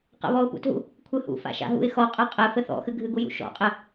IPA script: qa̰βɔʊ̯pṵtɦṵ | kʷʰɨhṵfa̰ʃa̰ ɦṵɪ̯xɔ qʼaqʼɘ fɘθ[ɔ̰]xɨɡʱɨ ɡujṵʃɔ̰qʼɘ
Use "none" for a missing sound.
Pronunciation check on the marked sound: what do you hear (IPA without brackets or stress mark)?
ɔ̰